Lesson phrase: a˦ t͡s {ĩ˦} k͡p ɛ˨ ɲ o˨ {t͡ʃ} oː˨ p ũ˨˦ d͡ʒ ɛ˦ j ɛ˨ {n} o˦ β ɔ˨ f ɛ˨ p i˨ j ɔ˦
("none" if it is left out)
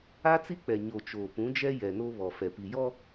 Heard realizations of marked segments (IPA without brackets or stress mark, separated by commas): i˦, t͡ʃ, n